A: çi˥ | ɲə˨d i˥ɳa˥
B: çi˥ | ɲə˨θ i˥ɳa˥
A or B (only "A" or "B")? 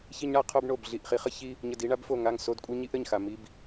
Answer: A